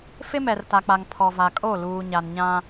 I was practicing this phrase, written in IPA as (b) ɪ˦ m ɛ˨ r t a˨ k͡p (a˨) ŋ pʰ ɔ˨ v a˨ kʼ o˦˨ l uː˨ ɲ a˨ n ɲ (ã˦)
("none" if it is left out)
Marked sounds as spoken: f, a˨, ã˦

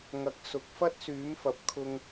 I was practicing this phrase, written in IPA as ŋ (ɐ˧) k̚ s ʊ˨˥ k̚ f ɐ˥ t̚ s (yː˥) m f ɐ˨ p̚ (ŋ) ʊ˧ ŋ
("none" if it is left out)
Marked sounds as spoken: ɐ˧, yː˨˥, kʰ

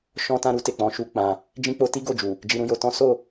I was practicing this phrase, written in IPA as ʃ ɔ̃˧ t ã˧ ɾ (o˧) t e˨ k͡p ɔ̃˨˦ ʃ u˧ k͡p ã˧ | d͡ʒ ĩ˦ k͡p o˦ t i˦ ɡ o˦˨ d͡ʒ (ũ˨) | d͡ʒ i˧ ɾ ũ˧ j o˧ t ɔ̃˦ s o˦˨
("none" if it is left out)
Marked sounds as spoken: u˧, u˨

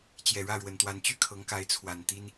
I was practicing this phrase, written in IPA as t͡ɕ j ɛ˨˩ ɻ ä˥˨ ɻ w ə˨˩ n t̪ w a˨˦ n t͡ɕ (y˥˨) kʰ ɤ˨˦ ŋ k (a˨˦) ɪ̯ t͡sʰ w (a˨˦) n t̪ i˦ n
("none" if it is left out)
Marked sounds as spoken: y˥˨, a˨˦, a˨˩

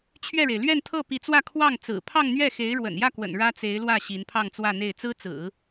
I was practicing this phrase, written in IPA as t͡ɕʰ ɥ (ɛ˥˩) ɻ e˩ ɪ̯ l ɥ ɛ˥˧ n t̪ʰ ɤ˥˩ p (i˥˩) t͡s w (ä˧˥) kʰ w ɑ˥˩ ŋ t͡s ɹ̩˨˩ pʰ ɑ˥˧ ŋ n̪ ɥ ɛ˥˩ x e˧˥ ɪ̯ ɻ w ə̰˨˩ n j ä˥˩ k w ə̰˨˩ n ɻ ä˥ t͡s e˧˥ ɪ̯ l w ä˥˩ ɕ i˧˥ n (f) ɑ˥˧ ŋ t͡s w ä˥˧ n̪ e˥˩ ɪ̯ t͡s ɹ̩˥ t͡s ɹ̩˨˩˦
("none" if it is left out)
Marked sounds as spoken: ɛ˥˩, i˧˥, ä˥˧, pʰ

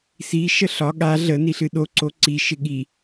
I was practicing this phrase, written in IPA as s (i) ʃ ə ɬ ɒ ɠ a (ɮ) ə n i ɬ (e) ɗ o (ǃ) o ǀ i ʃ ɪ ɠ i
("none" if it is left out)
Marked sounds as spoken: i, ɮ, ɨ, ǀ

